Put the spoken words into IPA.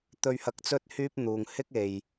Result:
t̪ ɵ˧ ɥ h ɐ˧ k̚ t͡s ɵ˥ t̚ h yː˥ p̚ n̪ uː˨ ŋ h ɪ˥ k̚ e˨ j

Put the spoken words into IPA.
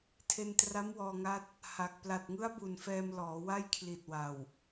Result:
tʰ e˧ n t r a˦˥ m w ɔː˧ ŋ a˦˥ t̚ | h a˨˩ k̚ p l a˨˩ t̚ ŋ ɯ˦˥ a̯ b u˨˩ n f ɛː˧ m l ɔː˩˦ w a˥˩ j kʰ l i˨˩ t̚ w a˨˩ w

